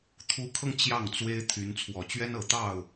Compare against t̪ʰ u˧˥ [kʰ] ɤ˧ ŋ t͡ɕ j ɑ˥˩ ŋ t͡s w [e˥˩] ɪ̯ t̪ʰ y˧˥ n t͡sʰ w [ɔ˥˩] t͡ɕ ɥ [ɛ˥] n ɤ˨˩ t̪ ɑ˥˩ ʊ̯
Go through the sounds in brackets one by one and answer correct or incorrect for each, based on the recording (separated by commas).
correct, incorrect, incorrect, correct